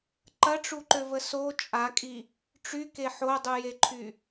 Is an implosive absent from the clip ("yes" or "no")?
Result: yes